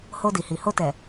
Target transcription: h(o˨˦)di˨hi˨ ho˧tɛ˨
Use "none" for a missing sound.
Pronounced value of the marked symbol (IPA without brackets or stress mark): o˧